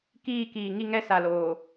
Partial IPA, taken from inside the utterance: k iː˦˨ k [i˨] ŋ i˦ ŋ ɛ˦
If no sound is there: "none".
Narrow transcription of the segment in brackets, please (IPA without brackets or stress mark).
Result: iː˨